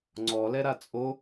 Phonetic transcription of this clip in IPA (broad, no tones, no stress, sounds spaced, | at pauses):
ŋ͡ǀ ɔ l ɛ ɾ a t͡sʼ o